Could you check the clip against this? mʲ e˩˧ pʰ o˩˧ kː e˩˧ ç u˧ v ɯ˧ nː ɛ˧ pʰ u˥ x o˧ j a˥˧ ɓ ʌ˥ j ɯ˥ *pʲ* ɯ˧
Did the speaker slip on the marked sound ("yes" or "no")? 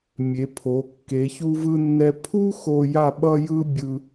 yes